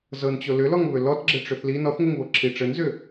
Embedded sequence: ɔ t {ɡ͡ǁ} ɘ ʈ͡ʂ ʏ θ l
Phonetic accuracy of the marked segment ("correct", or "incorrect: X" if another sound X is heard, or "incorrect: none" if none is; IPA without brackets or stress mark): correct